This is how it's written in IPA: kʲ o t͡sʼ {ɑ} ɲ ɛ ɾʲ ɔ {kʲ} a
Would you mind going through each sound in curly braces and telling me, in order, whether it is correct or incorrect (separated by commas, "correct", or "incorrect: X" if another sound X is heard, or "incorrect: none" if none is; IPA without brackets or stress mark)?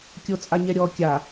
incorrect: a, correct